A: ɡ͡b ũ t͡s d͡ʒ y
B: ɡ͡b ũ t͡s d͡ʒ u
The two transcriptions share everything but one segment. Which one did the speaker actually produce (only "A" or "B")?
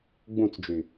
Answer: A